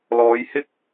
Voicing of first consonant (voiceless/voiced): voiced